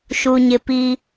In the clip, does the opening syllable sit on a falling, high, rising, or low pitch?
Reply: high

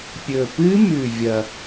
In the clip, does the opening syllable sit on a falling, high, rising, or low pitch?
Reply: low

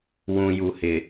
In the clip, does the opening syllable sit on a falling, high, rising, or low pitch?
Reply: low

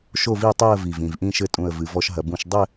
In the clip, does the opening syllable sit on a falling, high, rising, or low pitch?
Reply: falling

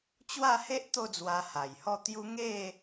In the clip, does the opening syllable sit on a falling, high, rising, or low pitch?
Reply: falling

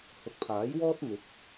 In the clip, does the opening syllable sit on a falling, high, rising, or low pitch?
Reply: rising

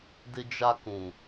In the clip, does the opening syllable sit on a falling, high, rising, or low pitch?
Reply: high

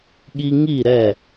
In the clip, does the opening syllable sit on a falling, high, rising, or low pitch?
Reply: high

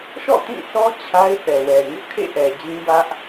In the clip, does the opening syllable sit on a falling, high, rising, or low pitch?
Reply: falling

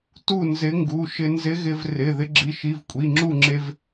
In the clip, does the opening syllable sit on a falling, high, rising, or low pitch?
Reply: falling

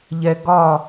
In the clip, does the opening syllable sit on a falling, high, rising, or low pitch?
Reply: high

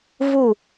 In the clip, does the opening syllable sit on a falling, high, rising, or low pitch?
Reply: falling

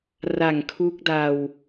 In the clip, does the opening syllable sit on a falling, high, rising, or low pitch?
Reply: low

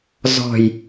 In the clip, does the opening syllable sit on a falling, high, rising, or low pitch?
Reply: falling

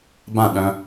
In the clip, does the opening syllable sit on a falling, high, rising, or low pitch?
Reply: falling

